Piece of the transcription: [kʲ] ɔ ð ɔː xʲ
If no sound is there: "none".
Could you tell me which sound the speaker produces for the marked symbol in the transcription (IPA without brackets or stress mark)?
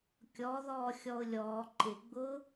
kʲ